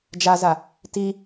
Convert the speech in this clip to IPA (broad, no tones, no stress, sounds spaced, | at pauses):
d͡ʒ a z a | t i